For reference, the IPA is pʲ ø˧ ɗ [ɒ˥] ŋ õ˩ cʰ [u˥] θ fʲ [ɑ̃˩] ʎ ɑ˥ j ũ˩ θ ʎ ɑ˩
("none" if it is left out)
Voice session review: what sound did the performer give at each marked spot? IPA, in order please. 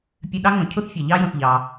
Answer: ɑ˥, u˥, ɑ˩

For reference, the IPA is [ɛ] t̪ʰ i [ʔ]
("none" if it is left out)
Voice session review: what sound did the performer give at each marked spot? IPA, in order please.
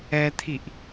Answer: ɛ, ʔ

